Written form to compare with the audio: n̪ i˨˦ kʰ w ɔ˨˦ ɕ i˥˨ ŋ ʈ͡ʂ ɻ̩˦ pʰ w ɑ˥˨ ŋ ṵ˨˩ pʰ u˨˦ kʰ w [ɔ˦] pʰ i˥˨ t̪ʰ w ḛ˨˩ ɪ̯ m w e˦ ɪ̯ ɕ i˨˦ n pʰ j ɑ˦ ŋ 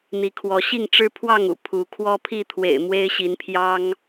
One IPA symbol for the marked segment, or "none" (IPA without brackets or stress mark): ɔ˦